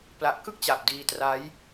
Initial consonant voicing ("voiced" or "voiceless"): voiceless